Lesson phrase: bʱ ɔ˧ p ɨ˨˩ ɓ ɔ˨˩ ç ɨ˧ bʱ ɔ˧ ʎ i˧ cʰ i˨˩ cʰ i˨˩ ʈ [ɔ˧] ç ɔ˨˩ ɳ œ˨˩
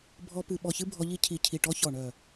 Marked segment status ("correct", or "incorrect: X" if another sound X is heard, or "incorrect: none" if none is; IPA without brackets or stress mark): correct